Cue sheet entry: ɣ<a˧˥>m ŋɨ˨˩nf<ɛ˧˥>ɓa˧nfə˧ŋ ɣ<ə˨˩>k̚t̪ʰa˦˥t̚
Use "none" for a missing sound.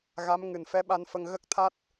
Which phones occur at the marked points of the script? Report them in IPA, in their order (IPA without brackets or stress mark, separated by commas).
a˧˥, ɛ˧˥, ə˦˥